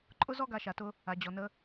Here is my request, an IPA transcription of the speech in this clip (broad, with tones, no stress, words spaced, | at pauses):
ǃʼʊ˥ zɔ˦ɡa˨ʃa˩tʊ˨ | a˩ d͡ʑɔ˩nə˨